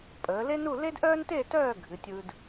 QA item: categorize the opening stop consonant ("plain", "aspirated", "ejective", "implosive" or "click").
ejective